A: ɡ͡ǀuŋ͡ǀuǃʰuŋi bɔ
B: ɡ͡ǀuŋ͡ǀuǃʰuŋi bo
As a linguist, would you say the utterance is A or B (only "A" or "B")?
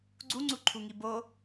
B